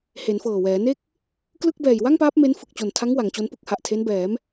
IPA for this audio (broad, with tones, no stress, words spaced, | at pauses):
he˩˦nfɤː˨˩wɛː˩˦ne˥˩k̚ | klɯ˥˩k̚bɛː˨˩j wa˥˩ŋpaː˦˥p̚ me˦˥nfɯ˨˩k̚t͡ɕo˨˩ntʰa˦˥ŋ wa˩˦ŋt͡ɕo˦˥npɯ˦˥k̚ ha˨˩ʔtʰe˦˥nbɛː˩˦m